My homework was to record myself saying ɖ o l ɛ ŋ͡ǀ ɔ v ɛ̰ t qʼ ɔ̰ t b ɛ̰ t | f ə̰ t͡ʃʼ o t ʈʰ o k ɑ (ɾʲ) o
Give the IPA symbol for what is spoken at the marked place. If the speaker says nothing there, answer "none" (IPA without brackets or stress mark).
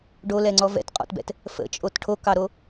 ɾ